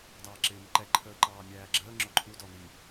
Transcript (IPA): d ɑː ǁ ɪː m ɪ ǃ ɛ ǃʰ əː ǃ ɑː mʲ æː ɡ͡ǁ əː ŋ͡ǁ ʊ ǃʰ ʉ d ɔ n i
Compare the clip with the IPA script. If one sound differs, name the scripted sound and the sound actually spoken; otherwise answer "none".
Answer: ʉ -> u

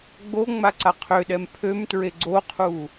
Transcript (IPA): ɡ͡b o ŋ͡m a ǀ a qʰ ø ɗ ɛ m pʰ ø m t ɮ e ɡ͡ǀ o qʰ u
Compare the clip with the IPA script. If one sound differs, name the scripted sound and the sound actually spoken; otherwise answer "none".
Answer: ɮ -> ɹ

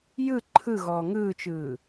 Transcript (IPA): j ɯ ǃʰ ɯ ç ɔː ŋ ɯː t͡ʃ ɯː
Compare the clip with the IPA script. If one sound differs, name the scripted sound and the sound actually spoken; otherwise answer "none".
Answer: ç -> ɣ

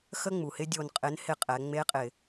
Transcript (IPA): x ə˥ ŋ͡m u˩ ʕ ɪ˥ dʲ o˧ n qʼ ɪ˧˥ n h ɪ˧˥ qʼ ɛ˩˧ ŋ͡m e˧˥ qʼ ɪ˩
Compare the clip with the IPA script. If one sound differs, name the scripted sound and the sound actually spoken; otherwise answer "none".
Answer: ʕ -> h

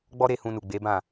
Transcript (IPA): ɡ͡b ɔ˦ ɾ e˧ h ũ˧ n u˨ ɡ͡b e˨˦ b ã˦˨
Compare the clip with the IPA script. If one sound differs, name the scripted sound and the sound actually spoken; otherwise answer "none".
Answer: none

